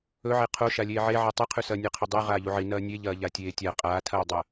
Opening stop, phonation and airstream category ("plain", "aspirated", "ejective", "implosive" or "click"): aspirated